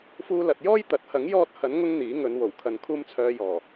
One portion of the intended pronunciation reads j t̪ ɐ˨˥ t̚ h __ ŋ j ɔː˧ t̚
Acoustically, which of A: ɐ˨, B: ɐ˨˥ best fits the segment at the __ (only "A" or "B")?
B